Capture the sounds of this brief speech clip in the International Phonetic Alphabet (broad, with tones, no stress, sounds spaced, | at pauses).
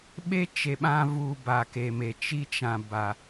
ɓ e˦ t͡ʃ e˨ ɓ ã˧ v u˨ b a˨ k e˨ m e˨ t͡ʃ i˦ t͡ʃ ã˨ b a˨